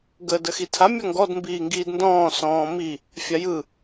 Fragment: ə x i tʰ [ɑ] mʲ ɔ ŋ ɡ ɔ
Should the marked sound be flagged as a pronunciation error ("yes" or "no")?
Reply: yes